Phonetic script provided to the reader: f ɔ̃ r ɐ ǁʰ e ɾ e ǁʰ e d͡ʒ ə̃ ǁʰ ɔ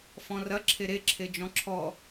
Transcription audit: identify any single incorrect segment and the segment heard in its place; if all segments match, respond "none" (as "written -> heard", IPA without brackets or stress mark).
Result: ə̃ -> ɔ̃